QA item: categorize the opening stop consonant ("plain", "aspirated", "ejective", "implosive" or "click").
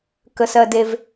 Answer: plain